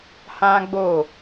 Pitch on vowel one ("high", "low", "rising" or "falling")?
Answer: high